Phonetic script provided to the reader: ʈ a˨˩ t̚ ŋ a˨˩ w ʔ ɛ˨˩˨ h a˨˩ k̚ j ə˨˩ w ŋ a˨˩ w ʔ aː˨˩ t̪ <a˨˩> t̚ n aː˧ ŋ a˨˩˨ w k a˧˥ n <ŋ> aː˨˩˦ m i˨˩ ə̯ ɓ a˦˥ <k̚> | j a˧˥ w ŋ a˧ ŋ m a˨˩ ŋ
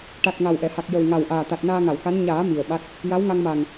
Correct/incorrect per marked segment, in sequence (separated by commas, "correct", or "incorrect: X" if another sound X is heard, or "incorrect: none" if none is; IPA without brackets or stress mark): correct, incorrect: ɲ, incorrect: t̚